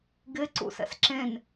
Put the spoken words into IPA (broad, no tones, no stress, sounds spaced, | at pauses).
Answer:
ɡ ɪ ǀ ṵ s ɛ̰ s ǁ ẽ n